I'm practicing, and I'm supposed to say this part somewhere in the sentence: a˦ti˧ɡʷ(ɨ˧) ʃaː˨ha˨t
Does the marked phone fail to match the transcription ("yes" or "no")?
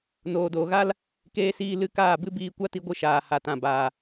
no